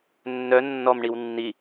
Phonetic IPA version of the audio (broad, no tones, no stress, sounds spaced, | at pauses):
nː œ nː ɔ m ɳ i w nː i